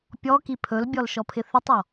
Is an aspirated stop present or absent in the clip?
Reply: present